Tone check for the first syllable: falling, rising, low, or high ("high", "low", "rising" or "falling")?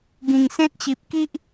low